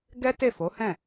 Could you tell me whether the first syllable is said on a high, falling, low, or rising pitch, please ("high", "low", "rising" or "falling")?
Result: high